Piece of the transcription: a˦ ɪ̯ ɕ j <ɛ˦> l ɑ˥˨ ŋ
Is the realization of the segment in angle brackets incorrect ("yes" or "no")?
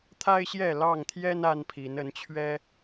yes